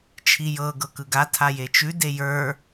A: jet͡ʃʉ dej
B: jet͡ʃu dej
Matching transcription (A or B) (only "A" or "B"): A